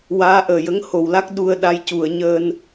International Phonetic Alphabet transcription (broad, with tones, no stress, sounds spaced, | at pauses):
w aː˧˥ ʔ əː˨˩ j ə˧˥ ŋ h o˨˩ w l a˦˥ k̚ ɗ u˧ ə̯ ɗ a˧˥ j c u˨˩˨ ə̯ ɲ əː˧ n